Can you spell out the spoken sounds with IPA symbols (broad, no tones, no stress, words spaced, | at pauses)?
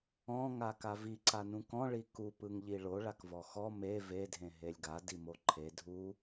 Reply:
ɔ̃ ŋakavi ǀanũkɔ̃ ɭiku pɯŋʎiɭo ɭakvɔxɔ me ve dʱẽɦelʲɡa dimoǃʰe dʱu